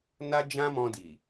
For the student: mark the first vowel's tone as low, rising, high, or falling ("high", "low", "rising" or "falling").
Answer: high